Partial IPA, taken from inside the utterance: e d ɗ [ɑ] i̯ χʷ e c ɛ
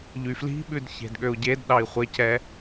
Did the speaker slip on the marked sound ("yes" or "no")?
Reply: no